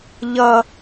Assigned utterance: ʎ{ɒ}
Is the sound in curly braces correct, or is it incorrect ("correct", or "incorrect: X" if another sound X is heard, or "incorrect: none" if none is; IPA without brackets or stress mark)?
incorrect: ʌ